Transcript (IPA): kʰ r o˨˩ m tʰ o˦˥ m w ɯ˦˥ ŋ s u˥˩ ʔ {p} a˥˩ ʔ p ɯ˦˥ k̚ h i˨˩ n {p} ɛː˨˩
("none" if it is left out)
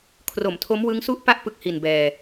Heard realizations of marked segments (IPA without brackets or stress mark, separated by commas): p, b